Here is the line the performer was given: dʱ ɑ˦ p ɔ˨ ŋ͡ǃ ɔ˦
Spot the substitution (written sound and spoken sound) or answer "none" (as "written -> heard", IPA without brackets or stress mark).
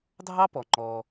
none